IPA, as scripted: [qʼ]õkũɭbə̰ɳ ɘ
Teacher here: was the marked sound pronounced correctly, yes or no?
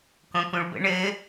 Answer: no